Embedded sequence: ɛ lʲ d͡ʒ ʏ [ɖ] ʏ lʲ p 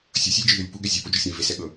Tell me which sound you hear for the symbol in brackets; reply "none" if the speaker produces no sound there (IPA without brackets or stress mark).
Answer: ð